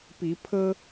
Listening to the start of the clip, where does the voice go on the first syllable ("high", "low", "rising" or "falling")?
rising